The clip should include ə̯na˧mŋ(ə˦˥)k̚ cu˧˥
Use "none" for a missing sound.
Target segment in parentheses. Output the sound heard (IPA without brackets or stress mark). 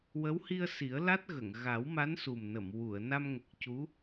ə˨˩